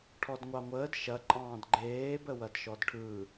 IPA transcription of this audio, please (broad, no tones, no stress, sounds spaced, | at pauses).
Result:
ʈʰ ɔ d ŋʷ ɑ ŋʷ əː d ʃ ɐ ǃʼ ɑ̃ː d ɡ͡ǃ eː b ə w ɐ d ʃ ɔ d ʈʰ ɯ